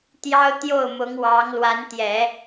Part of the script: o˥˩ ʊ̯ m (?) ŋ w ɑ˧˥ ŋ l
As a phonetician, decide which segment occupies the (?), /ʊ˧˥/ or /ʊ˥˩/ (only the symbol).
ʊ˧˥